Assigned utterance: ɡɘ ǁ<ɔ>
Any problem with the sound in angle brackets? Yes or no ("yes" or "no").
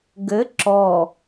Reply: no